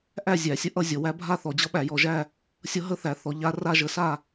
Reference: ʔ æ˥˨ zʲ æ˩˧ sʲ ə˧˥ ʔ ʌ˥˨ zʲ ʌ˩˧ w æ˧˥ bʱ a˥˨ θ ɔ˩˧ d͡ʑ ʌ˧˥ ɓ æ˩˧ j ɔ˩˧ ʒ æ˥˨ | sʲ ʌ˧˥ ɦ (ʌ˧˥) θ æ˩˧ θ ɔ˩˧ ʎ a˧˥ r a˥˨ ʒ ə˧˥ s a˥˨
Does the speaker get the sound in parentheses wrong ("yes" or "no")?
yes